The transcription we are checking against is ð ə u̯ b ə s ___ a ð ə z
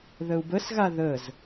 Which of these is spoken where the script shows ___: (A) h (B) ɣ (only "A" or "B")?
B